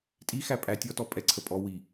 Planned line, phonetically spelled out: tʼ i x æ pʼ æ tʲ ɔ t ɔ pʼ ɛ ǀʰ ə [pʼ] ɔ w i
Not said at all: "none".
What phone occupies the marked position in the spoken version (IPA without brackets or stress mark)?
pʼ